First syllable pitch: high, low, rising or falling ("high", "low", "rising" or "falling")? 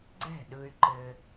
falling